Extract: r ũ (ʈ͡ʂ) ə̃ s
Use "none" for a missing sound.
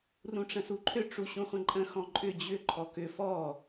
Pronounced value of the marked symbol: ʈ͡ʂ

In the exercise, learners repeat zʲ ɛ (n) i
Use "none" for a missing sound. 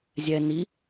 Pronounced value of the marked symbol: n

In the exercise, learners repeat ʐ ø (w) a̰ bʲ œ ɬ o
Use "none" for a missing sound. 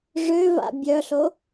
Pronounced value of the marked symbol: v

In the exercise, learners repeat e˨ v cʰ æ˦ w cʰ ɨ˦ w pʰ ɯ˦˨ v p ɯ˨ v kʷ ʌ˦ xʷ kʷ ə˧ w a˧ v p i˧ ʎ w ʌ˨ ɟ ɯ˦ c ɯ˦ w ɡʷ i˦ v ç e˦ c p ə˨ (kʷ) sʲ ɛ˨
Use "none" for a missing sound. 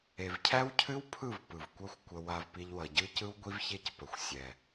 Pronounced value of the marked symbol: xʷ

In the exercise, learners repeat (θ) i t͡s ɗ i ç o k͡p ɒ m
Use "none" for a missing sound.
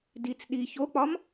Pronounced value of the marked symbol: d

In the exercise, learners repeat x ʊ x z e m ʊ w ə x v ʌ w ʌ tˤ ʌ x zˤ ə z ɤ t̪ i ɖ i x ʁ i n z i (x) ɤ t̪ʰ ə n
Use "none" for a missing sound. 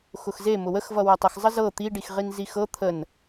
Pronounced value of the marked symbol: x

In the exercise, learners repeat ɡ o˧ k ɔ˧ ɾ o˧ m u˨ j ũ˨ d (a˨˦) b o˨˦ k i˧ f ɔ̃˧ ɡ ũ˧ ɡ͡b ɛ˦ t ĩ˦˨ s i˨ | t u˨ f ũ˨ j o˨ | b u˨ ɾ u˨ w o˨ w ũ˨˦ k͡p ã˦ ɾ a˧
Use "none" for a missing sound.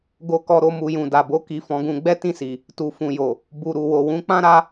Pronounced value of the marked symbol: a˨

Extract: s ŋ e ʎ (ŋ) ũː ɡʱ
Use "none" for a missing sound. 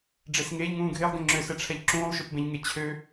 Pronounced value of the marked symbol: ŋ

